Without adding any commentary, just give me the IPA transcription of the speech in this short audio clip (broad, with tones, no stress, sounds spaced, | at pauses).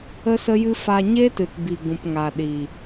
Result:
ə˦ s ə˦ j ɨ˦ f a˧ ɲ e˦ t ɨ˨ t b i˨ ɡ ũ˨ p ŋ a˨ ɗ i˨